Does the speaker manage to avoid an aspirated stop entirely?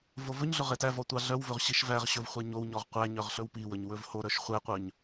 yes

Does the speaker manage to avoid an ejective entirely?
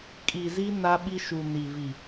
no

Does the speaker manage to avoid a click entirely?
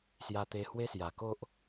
yes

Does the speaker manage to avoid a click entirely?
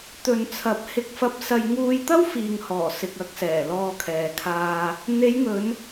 yes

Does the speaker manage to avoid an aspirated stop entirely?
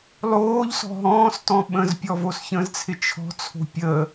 no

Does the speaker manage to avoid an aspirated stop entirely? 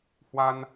yes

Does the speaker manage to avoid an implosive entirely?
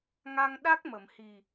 no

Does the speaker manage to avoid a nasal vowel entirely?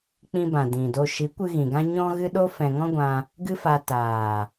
no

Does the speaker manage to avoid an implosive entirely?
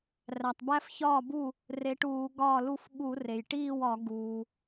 no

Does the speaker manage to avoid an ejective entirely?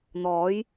yes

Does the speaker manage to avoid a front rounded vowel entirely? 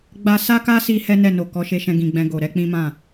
yes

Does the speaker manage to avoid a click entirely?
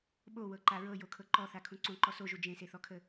no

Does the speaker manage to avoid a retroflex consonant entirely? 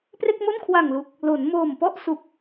yes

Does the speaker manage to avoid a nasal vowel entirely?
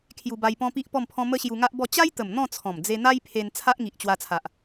no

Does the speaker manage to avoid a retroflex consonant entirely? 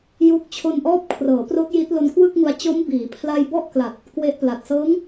yes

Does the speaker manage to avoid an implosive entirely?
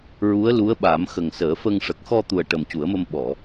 no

